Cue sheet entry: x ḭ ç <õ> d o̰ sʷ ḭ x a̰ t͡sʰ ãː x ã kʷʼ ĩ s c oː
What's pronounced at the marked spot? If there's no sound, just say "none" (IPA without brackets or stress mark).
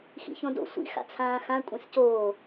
õ